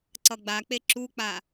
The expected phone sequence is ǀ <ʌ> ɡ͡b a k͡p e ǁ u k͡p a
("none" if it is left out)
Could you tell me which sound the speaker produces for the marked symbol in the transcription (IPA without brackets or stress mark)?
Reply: ʌ